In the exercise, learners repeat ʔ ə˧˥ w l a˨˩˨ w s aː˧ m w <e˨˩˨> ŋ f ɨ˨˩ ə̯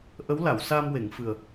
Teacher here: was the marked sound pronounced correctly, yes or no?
yes